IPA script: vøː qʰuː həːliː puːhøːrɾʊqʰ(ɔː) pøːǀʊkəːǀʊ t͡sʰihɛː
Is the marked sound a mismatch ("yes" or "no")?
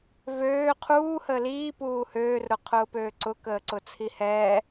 yes